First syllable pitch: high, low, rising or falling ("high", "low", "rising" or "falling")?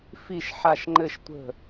falling